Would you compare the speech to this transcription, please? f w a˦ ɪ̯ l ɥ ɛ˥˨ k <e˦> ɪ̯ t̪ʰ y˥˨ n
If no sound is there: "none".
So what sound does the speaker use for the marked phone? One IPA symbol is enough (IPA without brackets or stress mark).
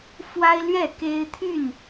e˦